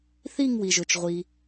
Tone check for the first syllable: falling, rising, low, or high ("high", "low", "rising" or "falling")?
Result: falling